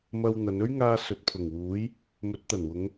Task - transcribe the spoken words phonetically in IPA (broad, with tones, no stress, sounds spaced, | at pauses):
m ɐ˧ w n̪ ɐ˨˧ n ɵ˥ ɥ ŋ aː˧ s ɵ˨ t̚ pʰ ʊ˨˩ ŋ w uː˨˥ j | m ɵ˨˥ t̚ t̪ ɐ˨˩ n w ʊ˨˧ ŋ